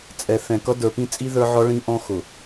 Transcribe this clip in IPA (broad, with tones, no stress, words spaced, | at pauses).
t͡sʼɛ˨ θɛ̃˨kʌ˦ də˞˨pĩ˦t͡sʼi˦ ðə˞˦ʕɔ˦ ɭĩ˦ ʔɔ̃˦ xʊ˨